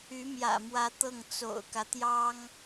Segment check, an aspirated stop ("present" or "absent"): absent